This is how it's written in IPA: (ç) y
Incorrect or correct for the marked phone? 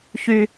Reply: correct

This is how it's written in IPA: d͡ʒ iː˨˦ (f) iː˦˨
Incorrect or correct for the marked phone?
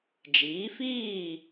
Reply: correct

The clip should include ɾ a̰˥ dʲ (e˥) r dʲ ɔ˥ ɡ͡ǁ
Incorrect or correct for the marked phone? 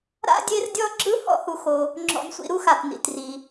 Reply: correct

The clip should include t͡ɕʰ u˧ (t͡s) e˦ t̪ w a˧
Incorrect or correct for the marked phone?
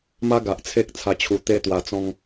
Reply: incorrect: t̪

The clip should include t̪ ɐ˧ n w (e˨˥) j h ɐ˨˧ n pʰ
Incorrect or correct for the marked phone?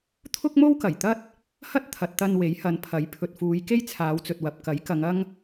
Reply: correct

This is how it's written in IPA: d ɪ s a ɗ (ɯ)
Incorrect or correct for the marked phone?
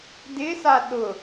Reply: incorrect: ʊ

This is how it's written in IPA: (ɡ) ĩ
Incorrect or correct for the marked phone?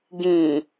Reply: correct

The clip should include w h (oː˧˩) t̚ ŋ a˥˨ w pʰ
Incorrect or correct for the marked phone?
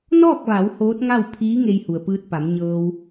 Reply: incorrect: oː˧˥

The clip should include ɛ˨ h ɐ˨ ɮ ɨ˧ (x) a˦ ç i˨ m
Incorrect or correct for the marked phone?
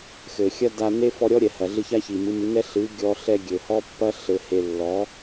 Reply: incorrect: ç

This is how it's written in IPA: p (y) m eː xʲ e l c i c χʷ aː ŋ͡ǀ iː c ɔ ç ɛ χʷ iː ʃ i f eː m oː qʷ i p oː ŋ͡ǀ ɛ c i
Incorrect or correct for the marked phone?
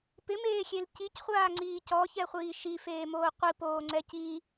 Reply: incorrect: ɪ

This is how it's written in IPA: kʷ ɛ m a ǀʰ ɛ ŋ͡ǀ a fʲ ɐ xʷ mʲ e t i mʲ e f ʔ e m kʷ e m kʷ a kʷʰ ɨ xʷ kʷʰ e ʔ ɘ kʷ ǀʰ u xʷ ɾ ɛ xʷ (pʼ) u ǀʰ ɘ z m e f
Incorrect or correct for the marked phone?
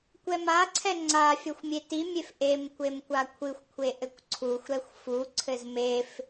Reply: incorrect: f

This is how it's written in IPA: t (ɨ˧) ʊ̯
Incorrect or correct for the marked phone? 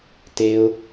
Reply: incorrect: e˧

